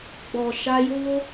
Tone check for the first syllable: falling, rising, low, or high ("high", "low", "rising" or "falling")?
low